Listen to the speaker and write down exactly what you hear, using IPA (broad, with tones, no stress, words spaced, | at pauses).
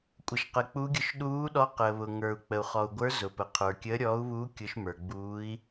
kʷʼə˩ʃqə˩k͡pu˨˦ɡʲʊ˨˦ʃ ɗuː˨˦ɗɔ˨˦ qəː˩βʊ˩ŋə˞˩u̯ k͡pə˩u̯ χɔ˩u̯ɡʷə˞˨˦ zʊ˩pə˩qʰə˞˩ kʲəː˨˦ɾʲɔː˨˦u̯βuː˨˦ kʲʊ˨˦ʃmə˞˩ɡ͡buː˨˦i̯